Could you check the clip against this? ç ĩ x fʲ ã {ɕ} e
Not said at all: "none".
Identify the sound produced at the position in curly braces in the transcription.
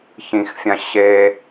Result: ɕ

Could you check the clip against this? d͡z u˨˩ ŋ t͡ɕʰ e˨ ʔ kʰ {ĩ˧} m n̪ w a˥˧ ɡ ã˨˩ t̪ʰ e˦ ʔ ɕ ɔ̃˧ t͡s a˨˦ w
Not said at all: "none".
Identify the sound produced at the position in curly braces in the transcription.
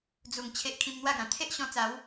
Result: ĩ˧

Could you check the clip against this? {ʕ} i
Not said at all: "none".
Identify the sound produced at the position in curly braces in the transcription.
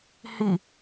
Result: h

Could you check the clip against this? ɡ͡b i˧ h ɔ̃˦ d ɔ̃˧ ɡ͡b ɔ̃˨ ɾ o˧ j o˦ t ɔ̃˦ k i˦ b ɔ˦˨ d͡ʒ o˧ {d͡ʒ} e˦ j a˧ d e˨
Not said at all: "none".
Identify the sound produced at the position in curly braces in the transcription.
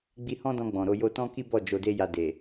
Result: d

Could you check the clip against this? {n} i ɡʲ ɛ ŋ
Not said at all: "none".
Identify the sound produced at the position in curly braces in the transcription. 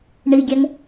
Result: ɳ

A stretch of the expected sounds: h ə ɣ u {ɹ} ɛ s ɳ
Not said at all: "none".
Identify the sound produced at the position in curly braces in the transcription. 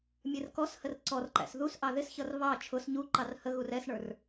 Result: r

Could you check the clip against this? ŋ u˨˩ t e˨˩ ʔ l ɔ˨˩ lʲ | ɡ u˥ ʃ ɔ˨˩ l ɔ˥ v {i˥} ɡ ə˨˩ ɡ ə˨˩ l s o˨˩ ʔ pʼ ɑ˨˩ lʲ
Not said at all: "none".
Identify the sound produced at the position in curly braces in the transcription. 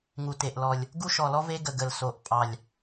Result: e˥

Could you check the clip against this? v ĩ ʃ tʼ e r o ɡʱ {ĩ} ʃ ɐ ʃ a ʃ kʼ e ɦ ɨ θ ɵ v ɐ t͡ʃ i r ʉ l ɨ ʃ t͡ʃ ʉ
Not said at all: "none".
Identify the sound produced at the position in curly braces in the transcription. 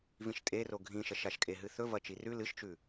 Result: ĩ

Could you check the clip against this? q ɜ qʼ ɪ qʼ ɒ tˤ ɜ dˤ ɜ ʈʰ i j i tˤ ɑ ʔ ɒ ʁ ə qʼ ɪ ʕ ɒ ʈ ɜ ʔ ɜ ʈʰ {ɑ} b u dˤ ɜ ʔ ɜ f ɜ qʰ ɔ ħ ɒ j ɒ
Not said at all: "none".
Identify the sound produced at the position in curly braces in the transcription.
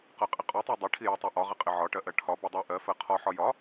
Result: ɒ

